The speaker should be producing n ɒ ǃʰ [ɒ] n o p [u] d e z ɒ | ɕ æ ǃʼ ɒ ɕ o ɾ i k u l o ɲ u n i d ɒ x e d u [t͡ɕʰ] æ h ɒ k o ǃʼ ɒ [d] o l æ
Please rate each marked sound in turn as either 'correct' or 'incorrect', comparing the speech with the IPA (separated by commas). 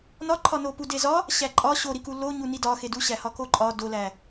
correct, correct, incorrect, correct